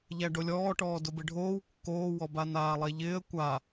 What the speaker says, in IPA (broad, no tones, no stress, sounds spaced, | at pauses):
ʎ æ ɖ o lʲ ɔː ʈ ɔː d ʊ b ɪ ɖʱ oː w kː oː w ɔ b a n aː lˠ ɛ ʎ ɪː ə̯ kʷ a